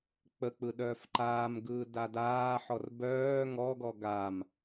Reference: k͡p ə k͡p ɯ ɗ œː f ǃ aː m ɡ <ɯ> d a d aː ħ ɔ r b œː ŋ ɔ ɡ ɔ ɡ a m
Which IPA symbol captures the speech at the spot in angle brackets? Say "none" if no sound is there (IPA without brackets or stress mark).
ɯː